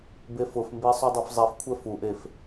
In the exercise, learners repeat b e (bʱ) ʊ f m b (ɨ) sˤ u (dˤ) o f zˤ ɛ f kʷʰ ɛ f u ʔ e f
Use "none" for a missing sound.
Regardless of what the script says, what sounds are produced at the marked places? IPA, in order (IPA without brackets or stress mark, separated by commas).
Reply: f, e, dˤ